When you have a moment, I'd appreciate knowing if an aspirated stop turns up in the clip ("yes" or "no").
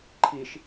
yes